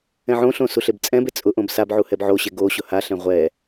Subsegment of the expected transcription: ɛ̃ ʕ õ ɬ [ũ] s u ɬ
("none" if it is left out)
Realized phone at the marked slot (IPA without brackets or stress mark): õ